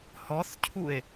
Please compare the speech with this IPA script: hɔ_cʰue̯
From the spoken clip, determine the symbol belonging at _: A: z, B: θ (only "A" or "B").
B